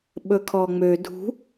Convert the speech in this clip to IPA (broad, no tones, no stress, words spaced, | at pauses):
ɓɵkʰɔŋ͡mø dʱṳ